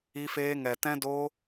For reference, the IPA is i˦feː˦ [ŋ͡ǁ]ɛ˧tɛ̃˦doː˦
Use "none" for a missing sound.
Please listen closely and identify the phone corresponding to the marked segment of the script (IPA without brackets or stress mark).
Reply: ŋ